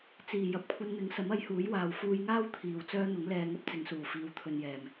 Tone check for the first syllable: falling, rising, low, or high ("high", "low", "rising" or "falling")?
low